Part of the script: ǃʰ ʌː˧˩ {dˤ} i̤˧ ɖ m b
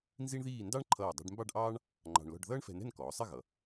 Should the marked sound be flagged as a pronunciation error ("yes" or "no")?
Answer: no